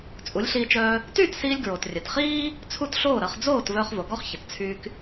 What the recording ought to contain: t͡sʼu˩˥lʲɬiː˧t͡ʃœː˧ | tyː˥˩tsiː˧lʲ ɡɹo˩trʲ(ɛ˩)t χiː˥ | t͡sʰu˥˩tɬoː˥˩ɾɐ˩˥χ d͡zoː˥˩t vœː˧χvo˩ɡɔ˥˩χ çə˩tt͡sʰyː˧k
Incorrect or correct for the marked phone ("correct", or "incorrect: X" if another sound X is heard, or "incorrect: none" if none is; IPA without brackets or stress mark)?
correct